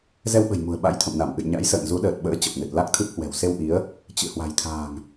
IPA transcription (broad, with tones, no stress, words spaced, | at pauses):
zɛ˧wɓə̤˨˩j mṳ˨˩ə̯ ɓa̰˧˥jt̪ʰə̰˧˨mna˧˩mʔɨ̰˧˨j ɲa̰˧˥jsə̰ː˧˨n zu˨˦ɗəː˨˩t̚ɓə̰ː˧˥ t͡ɕə˨˩p̚nɨ˨˩t̚ la˦˥k̚t̪ʰɨ˦˥p̚ hwɛ̤˨˩wse˧wʔi˨˦ə̯ | t͡ɕɨ̰˧˨ hwa̤˨˩jt̪ʰa̤ː˨˩ŋ